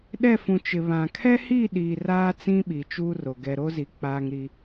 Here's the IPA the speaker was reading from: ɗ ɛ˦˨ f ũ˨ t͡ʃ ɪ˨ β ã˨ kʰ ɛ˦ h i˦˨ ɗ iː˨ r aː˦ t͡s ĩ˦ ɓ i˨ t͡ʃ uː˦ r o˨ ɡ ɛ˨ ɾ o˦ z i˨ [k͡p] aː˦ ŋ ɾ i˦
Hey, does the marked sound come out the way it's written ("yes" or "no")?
yes